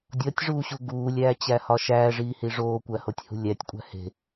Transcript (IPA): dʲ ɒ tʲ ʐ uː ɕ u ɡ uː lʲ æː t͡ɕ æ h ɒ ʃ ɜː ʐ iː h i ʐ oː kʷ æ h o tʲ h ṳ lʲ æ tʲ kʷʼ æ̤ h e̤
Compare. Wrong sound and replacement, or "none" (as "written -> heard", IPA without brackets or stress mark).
ɜː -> æː